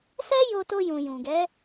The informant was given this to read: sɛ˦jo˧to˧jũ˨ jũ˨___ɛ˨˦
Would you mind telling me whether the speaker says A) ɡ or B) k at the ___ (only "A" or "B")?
A